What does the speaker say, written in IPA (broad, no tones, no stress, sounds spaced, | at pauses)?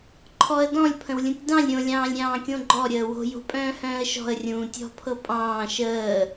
ǃʰ ɔ ə̯ d ɔ̃ lʲ pʰ ə̃ w lʲ ũ tʲ d ɑ̃ lʲ ɾʲ õ lʲ ɑ̃ː lʲ ɾʲ ɑ̃ː kʲ õ ɡ͡ǃ ɔ ɾʲ əː w o̤ j o̤ pʼ œ̃ː h œ̃ː ə̯ ʃ ɔ̤ ə̯ rʲ ũː tʲ ɔ̤ pʰ ɤ pʼ ɑ̃ː ʃ əː